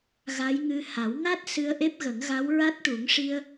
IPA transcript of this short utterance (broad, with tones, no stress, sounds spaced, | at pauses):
ɣ a˧˥ j ŋ ɨ˧ h a˨˩˦ w ŋ a˦˥ t̚ s ɨ˧ ə̯ ʔ e˦˥ p̚ ɣ ə˨˩˦ ŋ ɣ a˧˥ w ɹ a˦˥ t̚ ʈ u˨˩˦ ŋ ʂ i˧ ə̯